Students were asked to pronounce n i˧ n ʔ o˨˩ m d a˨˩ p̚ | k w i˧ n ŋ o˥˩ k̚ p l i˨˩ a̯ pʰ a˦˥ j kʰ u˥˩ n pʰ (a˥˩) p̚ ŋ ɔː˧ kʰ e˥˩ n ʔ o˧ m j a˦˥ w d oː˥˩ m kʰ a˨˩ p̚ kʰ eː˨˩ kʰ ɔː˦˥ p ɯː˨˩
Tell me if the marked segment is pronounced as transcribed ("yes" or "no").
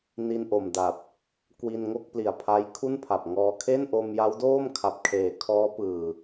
no